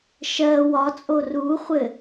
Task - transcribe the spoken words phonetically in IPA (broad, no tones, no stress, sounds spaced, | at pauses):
ʃ ɜ w ɒ t͡sʼ o r u χʷ ɘ